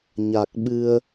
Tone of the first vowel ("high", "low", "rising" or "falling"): low